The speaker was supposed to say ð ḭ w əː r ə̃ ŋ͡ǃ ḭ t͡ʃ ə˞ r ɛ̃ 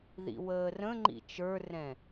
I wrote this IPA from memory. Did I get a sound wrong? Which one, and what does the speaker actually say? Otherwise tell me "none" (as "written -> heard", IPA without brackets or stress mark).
none